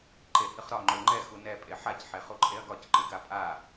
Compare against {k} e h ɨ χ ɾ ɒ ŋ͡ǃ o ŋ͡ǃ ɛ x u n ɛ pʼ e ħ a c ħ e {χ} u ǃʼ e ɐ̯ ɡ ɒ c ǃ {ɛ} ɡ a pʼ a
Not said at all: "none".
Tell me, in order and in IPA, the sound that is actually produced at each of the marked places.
ǃ, χ, ɨ

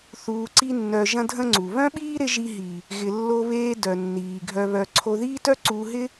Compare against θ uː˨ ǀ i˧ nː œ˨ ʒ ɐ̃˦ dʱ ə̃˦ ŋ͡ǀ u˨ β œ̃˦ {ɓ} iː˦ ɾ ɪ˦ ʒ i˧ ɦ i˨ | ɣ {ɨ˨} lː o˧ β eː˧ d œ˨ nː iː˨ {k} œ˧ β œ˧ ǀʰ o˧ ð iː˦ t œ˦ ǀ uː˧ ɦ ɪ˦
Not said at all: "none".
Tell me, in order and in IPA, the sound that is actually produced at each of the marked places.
ɓ, ɪ˨, ɡʱ

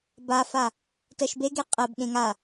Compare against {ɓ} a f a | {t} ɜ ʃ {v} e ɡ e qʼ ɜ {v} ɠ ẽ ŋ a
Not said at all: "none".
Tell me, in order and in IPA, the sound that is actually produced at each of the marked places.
b, t, b, b

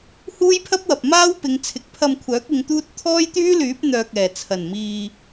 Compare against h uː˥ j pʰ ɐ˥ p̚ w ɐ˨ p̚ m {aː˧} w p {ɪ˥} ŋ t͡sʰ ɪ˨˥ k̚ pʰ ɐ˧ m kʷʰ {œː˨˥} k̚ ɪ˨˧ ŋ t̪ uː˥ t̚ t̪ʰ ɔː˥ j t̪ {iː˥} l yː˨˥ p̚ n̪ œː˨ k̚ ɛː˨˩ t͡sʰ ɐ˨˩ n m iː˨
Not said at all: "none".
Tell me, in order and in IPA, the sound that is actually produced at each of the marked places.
aː˥, ɪ˨˧, œː˨˥, yː˥

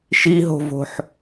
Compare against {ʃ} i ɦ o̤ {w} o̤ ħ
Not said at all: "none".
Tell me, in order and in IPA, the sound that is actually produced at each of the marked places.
ʃ, v

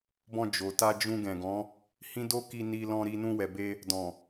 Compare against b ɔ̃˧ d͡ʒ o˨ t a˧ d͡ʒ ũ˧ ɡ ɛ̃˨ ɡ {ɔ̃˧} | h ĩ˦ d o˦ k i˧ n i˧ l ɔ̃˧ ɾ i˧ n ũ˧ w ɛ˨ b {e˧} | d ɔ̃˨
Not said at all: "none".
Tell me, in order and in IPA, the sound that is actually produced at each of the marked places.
ɔ̃˨˦, e˧

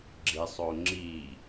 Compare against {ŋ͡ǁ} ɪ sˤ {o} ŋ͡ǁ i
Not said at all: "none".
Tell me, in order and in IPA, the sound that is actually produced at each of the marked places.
ɡ͡ǁ, o

